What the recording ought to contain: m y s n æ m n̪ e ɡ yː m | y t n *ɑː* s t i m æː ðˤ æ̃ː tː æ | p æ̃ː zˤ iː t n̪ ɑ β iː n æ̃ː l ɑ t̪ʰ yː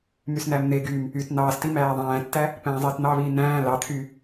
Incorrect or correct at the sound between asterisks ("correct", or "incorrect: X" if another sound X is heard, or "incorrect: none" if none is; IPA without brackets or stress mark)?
correct